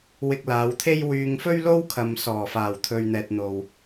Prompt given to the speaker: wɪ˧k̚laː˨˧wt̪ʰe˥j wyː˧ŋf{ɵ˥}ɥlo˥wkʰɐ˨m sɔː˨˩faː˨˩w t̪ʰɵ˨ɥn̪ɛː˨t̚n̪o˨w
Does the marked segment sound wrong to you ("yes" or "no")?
no